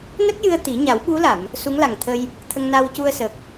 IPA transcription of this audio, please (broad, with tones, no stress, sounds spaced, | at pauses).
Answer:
n ə˦˥ k̚ j ɨ˧ ə̯ t̪ i˨˩˦ ɲ a˨˩˦ w ɓ u˧˥ l a˨˩˨ m | s u˧˥ ŋ l a˨˩ ŋ t̪ʰ ə˧ j | t̪ʰ ə˧ ŋ n a˧ w c u˧ ə̯ s ə˨˩ k̚